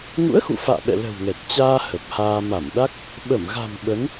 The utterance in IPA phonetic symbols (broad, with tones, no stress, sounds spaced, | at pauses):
ŋ ṵ˧˥ ə̯ x ṵ˧˨ f a̰ː˧˨ ɓ ɛ̰˧˨ l ə̤˨˩ w ŋ ɛ˨˩ t̚ t͡ɕ aː˧ h ə˨˩ p̚ h aː˧ m a˧˩ m ɗ a˦˥ k̚ | ɓ ə˧˩ m ɣ a̤˨˩ m ɓ ə˨˦ n